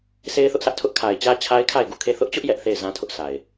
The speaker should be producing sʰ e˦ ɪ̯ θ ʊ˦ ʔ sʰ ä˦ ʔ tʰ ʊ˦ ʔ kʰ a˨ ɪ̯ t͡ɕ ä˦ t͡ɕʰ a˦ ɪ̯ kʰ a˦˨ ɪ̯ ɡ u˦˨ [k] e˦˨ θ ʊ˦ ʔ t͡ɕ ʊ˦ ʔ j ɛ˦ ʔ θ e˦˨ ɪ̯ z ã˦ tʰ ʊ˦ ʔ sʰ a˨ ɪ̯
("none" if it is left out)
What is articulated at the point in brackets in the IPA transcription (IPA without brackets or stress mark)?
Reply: kʰ